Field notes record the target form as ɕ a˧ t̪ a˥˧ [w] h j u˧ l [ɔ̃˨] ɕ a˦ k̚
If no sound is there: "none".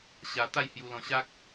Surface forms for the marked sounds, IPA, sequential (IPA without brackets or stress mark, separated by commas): j, ɔ̃˧